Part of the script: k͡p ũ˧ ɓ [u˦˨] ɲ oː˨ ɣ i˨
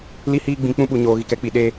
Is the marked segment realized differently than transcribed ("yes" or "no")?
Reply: yes